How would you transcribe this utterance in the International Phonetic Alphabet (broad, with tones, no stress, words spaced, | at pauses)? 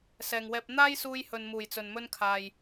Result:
sɛː˨ŋwɛː˧p̚ n̪aː˥jsuː˧jhɵ˨n muː˨˩jt͡sɵ˨nmɵ˥nkʰaː˨j